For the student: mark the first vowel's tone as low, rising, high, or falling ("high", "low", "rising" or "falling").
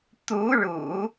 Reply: rising